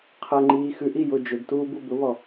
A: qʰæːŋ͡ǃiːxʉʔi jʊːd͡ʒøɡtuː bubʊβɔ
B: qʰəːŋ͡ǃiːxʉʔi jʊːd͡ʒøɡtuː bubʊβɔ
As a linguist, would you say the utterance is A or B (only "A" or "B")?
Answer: B